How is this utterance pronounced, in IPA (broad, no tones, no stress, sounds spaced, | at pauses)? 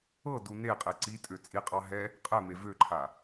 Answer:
ɤ d u n e qʼ e ǀ i tʼ ø t͡sʼ i qʼ ɑ ɦ ɛ | qʼ ɛ m e v ø ǃʰ a